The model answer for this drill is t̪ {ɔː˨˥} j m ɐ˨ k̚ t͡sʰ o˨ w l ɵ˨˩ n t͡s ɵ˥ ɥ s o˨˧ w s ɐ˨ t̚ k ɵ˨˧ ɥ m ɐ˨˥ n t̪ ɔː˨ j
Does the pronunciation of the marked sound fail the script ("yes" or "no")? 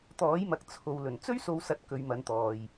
no